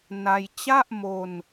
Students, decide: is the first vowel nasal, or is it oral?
oral